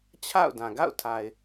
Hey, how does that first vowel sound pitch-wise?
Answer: falling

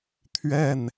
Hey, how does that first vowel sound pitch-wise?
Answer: falling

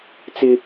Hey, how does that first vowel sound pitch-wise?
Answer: high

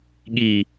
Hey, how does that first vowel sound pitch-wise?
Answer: low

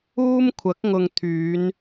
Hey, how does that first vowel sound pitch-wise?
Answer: high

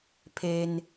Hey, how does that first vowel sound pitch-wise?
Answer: low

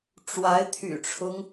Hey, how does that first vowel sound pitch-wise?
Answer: rising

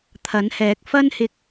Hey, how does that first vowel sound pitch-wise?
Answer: rising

